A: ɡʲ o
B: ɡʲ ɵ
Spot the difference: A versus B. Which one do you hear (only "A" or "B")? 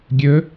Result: B